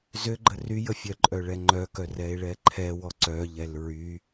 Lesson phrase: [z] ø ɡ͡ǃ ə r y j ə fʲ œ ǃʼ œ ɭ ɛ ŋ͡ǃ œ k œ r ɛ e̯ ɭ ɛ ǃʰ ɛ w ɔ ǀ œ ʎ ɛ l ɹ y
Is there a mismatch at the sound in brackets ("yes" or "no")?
no